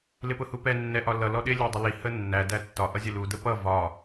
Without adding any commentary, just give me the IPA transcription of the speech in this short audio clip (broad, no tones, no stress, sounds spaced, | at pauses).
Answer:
l ɪ p ʊ h u p ɛ nː ɛ ʔ ɒ l ʌ l ɔ ɗ ɪ lʲ æ dˤ ɪ l i h ə nː æ d æ tː ɒ ʔ ʌ zʲ ə l u d ə p ʌ v ɒ